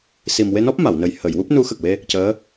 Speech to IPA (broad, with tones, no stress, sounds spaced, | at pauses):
s i˨˩ m w e˧ n ɔ˦˥ p̚ m a˨˩˨ w n ə˨˩ j h ə˨˩˨ j w u˦˥ p̚ n u˧˥ x ə˨˩ k̚ w e˧ | c əː˧˥